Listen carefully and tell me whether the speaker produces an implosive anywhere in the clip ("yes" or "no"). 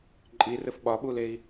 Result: yes